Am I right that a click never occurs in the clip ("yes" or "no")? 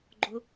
no